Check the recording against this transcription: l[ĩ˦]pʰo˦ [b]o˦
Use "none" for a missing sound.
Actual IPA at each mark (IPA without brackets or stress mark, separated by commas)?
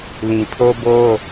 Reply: ĩ˨, b